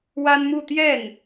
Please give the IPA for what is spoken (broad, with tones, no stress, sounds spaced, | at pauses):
w a˥ n m u˥˧ t̪ j ɛ˥˩ n